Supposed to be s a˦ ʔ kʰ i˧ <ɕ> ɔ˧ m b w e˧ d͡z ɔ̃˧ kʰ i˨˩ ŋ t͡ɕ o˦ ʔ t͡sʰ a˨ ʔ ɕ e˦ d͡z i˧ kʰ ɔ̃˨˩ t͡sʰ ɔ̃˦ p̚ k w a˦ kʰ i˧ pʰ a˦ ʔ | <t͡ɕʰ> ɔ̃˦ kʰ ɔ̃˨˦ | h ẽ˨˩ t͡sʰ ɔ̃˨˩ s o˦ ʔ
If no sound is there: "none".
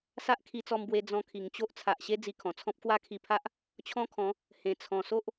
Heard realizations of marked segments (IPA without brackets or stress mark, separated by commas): t͡s, t͡ɕʰ